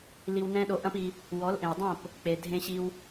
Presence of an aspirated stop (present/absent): absent